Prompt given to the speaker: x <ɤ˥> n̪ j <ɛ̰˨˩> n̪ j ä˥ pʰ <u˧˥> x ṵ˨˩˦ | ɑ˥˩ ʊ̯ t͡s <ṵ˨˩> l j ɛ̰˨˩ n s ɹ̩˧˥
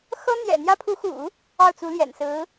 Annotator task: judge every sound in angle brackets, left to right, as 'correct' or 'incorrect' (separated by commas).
correct, correct, correct, incorrect